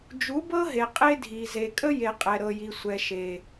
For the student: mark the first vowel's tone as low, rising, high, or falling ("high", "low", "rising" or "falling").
rising